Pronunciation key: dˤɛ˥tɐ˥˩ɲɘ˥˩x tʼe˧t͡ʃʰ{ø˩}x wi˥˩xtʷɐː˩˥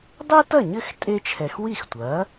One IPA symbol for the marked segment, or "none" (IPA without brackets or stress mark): ɛ˩